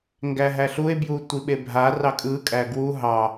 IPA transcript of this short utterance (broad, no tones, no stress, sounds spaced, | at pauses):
ŋ ɡ æ ɦ æ ɬ u e̯ b j u tʷ i ɓ e bʱ a r ɑ kʼ ɯ kʼ æ ɡ w u ɦ ɑ